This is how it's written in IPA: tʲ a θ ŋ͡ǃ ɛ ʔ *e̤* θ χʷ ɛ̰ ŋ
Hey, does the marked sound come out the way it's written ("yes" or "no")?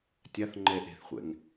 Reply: yes